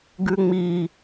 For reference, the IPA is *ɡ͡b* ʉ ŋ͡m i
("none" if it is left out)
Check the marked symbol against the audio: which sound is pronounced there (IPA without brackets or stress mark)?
ɡ